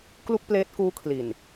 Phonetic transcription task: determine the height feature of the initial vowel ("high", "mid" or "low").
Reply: high